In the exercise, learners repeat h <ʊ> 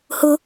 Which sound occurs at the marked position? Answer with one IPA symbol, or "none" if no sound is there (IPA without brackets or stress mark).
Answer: ʊ